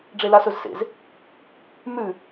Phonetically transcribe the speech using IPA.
ɖ͡ʐ e l a s ɵ z s ḛ z | m ʉ

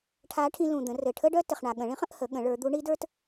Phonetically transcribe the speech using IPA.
ʈʰ a˧˥ ʈʰ ĩ˧ l ũ˩ d̪ ə̃˩˧ r ɘ˩ ʈʰ ə˥ ɖ œ˥ t ɘ˩ χ ɳ a˩ ɠ ə̃˩˧ ɭ ĩ˧˥ χ ə̃˩˧ ʔ h ə˩˧ ɠ ə̃˩˧ ɭ ə˞˩˧ d̪ u˧˥ ɳ i˧˥ d ə˞˥ t

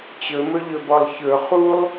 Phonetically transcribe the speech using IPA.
t͡ɕ ɵ m ɵ ʎ ɵ b ɔ lˠ ç ɵ χ u lˠ

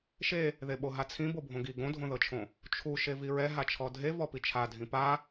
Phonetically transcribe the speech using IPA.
ʃ e | ð e ɓ o ɦ a t͡sʰ ĩ b o bʱ õ ɡ i ɡ õ dʱ õ ð ɤ t͡ʃʰ õ | t͡ʃʰ u ʃ e v i ɹ ɛ ɦ a t͡ʃʰ ɔ dʱ e v ɔ p i t͡ʃʰ a dʱ ĩ p a

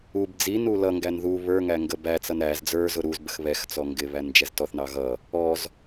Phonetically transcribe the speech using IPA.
u b d͡z i n u l ʌ ŋ ɡ æ n ð u β ə˞ ŋ æ ŋ ɡ ə b æ t͡s ʌ n ɾ æ z d͡z ə˞ z ʊ ɾ u z b ə x β ɛ x t͡s ɔ ŋ ɡ ɪ β æ n d͡ʒ ɛ z t ɔ θ n ɑ ɣ ʌ | ɔ z

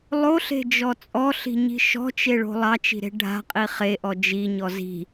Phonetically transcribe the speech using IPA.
lˠ o ɬ e̤ d͡ʒ ɔ t͡sʼ ɔ ɬ i̤ ɲ i̤ ʃ ɔ̤ t͡ʃ e ɭ o̤ lˠ ɑ t͡ʃ i̤ ɾ e̤ ɖʱ a̤ qʼ i χ e ʔ ɔ d͡ʒ i ɲ ɔ z i̤

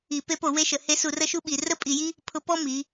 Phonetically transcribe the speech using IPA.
i˧˩˧ p e˧˥ p o˧˩˧ w e˧˥ ʃ ə˩˧ h e˧˥ s u˧˩˧ r ə˥ ʃ u˥ ɓ i˩˧ r ə˥ pʼ i˧˩˧ j i˥ | pʰ ʊ˧˥ p ɔ˥ m i˩˧

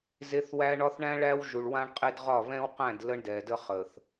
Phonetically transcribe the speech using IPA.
z e˦ θ w æ˦ ɳ ɒ˦ θ ɳ æ̃˦ ɭ æ˦ w ʒ u˨ ɭ w ã˦ ɳ qʼ e˦ d ʁ ɒ˦˨ β ɛ̃˦ w q æ̃˦˨ d l ə˦ ɳ d ɛ˨ d ə˦ χ ə˨ θ

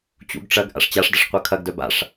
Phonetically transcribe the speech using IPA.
t͡ɕ ṵ ɡ ʈ͡ʂ ɐ ɡ ʔ a̰ ʂ t͡ɕ a ʂ d ɐ ʂ qʷ ɤ kʰ ɐ ɡ d œ b a̰ ʂ

